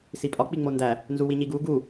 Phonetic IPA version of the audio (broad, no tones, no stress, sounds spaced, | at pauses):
s i pʼ ɒ k͡p i ŋ͡m o n d æ | n z u w i ɲ i ɡ u ɡ u